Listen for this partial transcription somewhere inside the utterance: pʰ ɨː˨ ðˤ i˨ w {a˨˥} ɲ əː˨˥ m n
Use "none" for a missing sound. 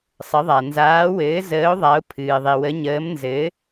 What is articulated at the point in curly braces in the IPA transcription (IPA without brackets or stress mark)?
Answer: ə˨˥